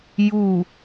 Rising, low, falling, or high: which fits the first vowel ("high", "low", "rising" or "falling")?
falling